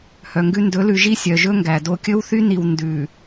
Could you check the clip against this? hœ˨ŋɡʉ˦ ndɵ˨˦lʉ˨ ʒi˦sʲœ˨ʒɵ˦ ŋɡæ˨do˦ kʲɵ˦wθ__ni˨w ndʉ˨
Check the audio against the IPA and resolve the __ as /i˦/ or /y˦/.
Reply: y˦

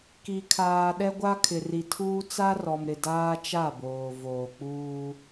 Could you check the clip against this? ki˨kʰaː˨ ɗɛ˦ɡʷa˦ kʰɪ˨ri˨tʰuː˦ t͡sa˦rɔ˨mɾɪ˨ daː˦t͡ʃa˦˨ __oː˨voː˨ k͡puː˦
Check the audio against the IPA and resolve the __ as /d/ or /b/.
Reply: b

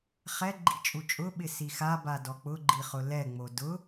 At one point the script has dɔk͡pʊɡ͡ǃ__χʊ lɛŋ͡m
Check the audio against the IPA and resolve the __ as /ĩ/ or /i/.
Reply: i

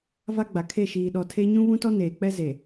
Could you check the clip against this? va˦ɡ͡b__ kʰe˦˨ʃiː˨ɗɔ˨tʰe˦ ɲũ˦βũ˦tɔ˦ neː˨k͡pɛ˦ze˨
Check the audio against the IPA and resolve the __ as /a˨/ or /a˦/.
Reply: a˨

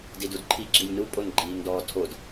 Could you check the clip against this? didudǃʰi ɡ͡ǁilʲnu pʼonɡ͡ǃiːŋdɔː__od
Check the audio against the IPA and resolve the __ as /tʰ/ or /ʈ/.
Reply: tʰ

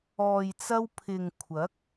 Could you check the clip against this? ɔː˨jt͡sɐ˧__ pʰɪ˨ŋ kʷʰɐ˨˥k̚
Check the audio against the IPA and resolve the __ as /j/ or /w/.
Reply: w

